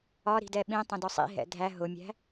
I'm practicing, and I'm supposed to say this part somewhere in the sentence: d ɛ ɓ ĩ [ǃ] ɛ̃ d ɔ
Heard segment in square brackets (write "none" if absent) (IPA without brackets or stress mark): tˤ